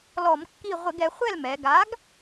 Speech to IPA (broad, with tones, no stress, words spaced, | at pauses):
lɔ˧˩˧mkːi˥˨ ʁʷɪ˧˩˧ɡɛ˩˧χʷɛ˥˨l mɛ˩˧ ɡa˨˥ɡ